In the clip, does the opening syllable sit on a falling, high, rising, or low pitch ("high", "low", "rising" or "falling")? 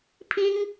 high